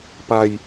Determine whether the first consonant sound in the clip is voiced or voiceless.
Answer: voiceless